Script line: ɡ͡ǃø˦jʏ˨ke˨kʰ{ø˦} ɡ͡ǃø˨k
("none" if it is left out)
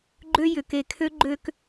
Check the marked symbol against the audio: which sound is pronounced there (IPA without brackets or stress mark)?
ø˦